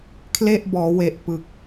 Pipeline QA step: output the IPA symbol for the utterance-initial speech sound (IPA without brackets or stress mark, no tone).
kʰ